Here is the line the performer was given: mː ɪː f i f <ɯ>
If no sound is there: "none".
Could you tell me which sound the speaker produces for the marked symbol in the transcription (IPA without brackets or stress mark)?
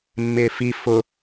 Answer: ʊ